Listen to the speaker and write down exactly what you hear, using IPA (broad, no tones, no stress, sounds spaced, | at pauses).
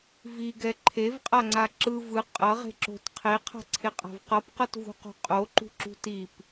v i ɡ ɛ ǃʰ e v qʼ a ŋ͡ǀ a ǁ ɯ v ɯ qʼ ʌ ʁ e̤ ǁ o̤ t qʰ e qʰ a̤ ǀʰ e qʼ a̤ v q ʌ p q ʌ t v ṳ q o̤ qʼ o ǃ ṳ ǁ ṳ t i p